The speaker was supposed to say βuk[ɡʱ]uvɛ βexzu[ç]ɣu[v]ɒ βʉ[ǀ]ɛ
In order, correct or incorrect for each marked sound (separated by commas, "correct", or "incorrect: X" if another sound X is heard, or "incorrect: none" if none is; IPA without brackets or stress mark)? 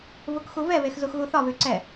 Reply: incorrect: x, incorrect: x, incorrect: θ, correct